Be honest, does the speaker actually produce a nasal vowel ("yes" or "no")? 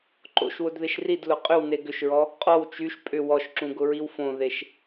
yes